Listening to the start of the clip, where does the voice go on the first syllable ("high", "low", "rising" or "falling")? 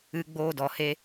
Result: low